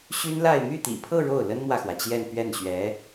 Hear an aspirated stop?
yes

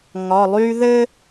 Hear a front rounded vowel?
yes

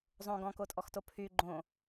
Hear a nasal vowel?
yes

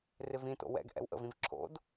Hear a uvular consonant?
no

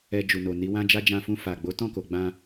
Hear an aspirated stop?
no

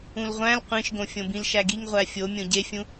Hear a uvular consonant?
yes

